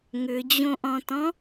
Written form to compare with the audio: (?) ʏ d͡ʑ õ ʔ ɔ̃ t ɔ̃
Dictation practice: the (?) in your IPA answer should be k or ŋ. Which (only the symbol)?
ŋ